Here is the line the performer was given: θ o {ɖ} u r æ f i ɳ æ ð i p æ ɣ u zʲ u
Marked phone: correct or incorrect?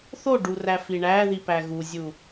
correct